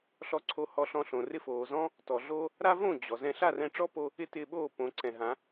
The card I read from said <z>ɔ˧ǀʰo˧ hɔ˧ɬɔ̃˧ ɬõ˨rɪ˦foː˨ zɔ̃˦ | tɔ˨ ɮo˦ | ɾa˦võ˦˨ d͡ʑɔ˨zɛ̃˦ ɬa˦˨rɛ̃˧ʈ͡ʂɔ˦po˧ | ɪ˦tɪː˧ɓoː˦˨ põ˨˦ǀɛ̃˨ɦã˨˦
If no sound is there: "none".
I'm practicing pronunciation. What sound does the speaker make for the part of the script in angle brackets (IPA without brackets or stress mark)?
ɬ